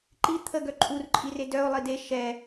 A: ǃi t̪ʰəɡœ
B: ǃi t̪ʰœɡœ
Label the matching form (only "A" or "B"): A